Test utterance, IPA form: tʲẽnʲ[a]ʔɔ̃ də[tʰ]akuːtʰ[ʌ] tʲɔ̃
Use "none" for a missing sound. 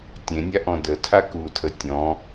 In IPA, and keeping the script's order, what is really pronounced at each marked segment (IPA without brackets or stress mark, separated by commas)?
a, tʰ, ə